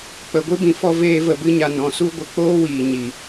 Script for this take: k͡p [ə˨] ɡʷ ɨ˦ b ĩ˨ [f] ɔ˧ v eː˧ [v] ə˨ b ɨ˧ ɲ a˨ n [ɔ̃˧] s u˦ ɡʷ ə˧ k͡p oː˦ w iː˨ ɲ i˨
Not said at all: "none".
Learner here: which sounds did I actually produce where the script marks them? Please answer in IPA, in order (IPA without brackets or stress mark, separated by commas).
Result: ə˨, f, v, ɔ̃˨